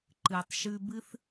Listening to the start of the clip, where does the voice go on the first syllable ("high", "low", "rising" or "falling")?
low